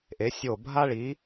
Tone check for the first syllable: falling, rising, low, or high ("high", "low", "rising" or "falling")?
rising